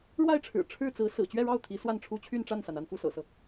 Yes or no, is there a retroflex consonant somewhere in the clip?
yes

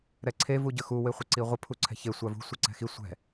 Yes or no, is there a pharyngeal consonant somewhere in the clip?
no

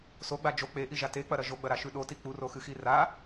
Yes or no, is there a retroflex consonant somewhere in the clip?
no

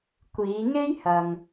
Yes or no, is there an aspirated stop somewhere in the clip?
no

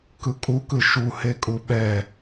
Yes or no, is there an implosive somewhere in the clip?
yes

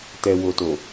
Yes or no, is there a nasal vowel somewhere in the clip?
no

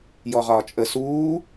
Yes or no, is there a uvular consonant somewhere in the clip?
yes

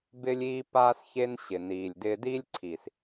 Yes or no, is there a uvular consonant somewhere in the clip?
no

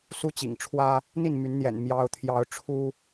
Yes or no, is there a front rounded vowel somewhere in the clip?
yes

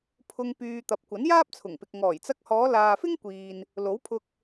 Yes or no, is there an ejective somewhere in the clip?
no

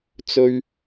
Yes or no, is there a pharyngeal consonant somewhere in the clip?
no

